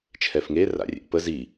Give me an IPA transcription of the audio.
t͡ʃʰ ɛ f ŋ e r a̰ rʲ ɛ̰ ʔ p ə z i

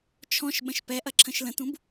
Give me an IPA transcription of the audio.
t͡ʃʰ ɔ̃ ʃ ɓ ə̃ ʃ p ɛ ʔ ɐ ǁʰ ə̃ ʃ l ə̃ t ũ b

